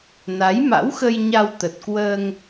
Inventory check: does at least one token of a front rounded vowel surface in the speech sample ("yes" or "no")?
no